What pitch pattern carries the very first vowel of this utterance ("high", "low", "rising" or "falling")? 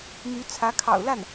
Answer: rising